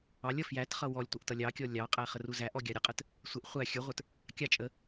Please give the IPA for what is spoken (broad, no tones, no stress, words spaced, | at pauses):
ɑlʲ ʌfjætχʌ wɔlʲtʷʌʔ tʌlʲɑkʲɔ lʲɑqʼæ χəruzæʔɔ ɡʲɑɾʲəqʼət | sʷɪʔ χʷæ xʲə˞ʁʷə˞t | kʲɑ t͡ʃʼə